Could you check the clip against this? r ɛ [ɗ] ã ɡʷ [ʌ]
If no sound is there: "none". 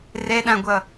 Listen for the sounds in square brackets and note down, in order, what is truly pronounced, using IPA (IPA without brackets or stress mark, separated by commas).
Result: ɗ, ʌ